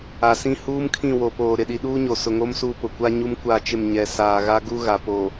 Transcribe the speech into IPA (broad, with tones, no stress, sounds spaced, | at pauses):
a˨ s ĩ˦ h uː˦ m kʰ ĩ˦˨ w o˨ p oː˨ ɾ ɪ˨ ɗ i˨ ɗ uː˦ ɲ o˨ s ʊ˨ ŋ o˦ m s u˦˨ p ʊ˨ kʷ a˦ ɲ u˦ m kʷ a˦˨ t͡ʃ ɪ˦˨ m ɲ ɛ˨ s aː˨ ɣ a˦ ɡ u˦ ɣ a˨ p o˨